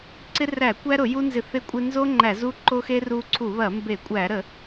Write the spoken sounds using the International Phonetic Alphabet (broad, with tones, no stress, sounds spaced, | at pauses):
ǀ ɪ˦ r æ˧˩˧ kʷ æ˦ ɾ ʊ˧˩˧ j u˦ n z ɪ˧˩˧ θ ɪ˦ kʷʼ ɪ˦ n z o˦ ŋ͡ǃ æ˧˩˧ z u˦ ǃ o˦ x e˦ r u˦ ǀʰ u˧˩˧ β ɐ˧˩˧ m b e˧˩˧ kʷʼ æ˧˩˧ ɾ ə˧˩˧